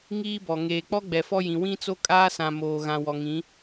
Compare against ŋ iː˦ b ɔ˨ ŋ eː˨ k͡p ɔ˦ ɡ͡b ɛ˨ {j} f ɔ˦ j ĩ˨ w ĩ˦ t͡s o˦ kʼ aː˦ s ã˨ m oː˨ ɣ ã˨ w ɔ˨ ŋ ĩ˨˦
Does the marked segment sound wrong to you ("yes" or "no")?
yes